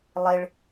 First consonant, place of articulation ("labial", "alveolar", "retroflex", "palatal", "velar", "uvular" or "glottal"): alveolar